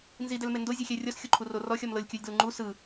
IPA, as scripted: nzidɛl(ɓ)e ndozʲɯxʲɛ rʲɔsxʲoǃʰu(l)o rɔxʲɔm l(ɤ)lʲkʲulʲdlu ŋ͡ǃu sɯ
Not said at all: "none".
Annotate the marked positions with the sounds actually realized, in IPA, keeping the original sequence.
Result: m, r, ɤ

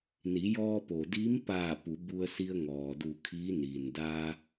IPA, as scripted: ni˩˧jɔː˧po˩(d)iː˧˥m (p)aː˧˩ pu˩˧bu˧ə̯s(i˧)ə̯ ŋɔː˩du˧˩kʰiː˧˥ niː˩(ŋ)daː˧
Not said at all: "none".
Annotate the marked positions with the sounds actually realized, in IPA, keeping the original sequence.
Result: d, p, i˧, n

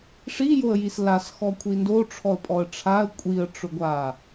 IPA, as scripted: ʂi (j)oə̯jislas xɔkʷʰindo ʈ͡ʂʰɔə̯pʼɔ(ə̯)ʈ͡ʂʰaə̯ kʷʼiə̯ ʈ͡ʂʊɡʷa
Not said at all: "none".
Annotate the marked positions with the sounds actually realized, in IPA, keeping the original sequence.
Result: j, ə̯

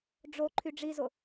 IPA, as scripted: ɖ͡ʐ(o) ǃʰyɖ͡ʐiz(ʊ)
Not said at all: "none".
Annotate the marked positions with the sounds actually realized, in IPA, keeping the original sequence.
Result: o, ʊ

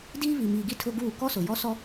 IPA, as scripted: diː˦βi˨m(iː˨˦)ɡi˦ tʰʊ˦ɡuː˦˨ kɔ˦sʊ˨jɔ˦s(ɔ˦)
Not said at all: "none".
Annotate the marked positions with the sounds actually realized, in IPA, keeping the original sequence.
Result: iː˨, ɔ˦

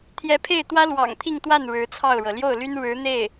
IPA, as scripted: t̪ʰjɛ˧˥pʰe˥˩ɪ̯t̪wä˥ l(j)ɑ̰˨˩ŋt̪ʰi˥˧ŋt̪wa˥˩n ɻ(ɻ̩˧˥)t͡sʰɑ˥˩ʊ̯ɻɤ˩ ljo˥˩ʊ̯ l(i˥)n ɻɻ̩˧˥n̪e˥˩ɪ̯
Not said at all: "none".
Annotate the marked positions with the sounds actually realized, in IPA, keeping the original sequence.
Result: w, ɻ̩˧˥, y˥

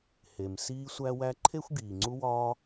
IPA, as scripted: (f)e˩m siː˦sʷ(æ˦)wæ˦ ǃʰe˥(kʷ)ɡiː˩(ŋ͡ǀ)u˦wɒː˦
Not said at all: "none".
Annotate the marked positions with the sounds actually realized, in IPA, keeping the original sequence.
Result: h, æ˦, xʷ, ŋ͡ǀ

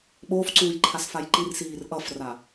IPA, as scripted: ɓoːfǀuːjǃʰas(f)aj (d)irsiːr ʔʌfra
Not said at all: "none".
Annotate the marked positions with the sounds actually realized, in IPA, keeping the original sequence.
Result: f, ǃ

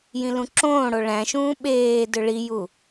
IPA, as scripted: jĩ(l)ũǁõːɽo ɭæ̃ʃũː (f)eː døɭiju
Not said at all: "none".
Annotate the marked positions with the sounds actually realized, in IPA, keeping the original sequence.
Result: l, ɓ

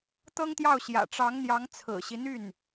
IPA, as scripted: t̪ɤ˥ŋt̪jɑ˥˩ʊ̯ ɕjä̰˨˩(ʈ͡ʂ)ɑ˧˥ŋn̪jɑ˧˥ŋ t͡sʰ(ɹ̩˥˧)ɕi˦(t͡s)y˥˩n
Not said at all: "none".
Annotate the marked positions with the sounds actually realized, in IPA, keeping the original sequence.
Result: ʈ͡ʂ, ɹ̩˨˩, n̪

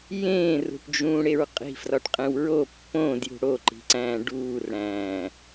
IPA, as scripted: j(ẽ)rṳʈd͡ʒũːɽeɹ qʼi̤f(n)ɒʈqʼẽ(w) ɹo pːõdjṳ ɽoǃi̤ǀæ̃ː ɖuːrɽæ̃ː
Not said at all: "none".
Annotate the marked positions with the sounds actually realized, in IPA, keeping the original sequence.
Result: ẽː, r, w

